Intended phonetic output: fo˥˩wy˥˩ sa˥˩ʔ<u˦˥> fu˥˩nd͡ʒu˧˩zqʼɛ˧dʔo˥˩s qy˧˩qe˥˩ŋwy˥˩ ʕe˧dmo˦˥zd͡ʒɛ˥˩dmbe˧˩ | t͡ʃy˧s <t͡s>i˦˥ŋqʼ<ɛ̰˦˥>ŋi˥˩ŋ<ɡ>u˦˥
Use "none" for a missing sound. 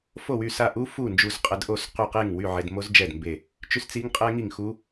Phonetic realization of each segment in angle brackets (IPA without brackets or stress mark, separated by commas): u˦˥, t͡s, ɛ˦˥, x